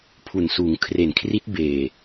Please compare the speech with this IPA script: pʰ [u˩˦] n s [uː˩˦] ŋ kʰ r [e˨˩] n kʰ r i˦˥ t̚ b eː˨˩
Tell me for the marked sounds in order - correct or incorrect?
incorrect: u˨˩, correct, correct

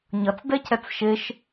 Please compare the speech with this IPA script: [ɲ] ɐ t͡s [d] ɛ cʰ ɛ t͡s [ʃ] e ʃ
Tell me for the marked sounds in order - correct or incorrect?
correct, correct, correct

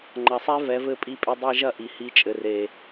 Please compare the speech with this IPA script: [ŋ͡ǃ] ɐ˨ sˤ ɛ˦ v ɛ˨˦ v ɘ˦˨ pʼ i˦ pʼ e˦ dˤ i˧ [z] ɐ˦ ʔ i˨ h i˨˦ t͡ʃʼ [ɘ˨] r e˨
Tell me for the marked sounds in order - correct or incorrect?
correct, incorrect: ʒ, correct

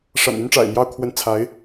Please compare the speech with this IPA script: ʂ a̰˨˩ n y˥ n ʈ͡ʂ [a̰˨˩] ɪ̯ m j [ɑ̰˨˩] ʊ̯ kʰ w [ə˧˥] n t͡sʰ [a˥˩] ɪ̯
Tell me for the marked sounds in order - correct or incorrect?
correct, incorrect: ɑ˥˩, correct, incorrect: a˧˥

